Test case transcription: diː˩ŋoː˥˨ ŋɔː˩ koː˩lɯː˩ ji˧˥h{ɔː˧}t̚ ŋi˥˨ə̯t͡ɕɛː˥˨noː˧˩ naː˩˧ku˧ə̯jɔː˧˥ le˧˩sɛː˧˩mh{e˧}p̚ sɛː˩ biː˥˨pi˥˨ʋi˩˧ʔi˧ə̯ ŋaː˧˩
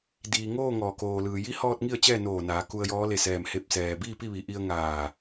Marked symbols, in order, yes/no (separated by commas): yes, yes